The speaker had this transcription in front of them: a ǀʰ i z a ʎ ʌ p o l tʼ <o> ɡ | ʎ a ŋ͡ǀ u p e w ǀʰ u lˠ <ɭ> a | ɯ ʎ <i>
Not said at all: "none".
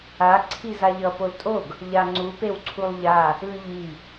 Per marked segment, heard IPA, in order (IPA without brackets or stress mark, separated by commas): o, ʎ, i